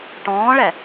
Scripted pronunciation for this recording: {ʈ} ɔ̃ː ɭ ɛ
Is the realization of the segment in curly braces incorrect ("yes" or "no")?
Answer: no